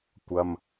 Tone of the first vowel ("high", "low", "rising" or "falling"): low